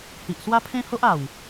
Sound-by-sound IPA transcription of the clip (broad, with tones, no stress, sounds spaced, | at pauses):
h i˨ ʔ s w a˦ pʰ ẽ˦ h o˦ ʔ a˨˩ w